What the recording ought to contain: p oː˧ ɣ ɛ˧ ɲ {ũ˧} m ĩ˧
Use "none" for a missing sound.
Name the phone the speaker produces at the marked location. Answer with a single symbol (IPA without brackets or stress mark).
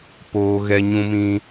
ũ˧